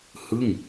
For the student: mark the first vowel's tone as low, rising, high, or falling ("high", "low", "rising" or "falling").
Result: falling